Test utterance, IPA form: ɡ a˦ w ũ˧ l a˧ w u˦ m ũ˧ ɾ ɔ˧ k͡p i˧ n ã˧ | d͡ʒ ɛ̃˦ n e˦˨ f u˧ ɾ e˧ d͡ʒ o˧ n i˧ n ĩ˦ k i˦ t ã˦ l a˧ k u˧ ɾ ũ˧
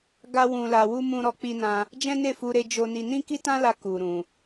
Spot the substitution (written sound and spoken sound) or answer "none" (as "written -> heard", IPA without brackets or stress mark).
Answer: none